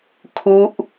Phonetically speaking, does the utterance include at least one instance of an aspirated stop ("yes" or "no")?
yes